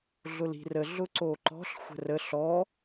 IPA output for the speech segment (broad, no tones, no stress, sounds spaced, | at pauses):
ɮ ʊ l i̤ r ə ɮ ʊ ǀ o ǃ ɔ̤ ɬ xʷ ə̤ r ə ɬ ɔ